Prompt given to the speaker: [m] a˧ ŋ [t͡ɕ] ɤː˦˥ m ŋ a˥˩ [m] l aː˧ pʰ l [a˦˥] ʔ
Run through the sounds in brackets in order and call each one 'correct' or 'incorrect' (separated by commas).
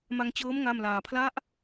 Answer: correct, correct, correct, correct